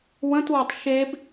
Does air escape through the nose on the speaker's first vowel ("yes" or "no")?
yes